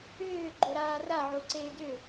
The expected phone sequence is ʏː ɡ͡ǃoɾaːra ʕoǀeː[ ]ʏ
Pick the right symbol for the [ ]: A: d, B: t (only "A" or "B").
A